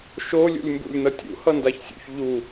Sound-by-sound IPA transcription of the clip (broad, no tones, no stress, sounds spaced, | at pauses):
ʃ o lʲ ṵ lʲ m b ṵ lʲ n ʌ tʲ ṵ h ʌ n d a ç sʲ ṵ ç ʎ u